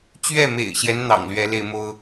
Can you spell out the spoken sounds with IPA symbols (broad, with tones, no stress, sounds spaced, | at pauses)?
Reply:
t͡ɕ ɥ ɛ˥˨ m ḛ˨˩ ɪ̯ ɕ j ɛ˦ n n̪ ɑ̰˨˩ ŋ l ɥ ɛ˨˦ l e˧ ɪ̯ m o˦ ʊ̯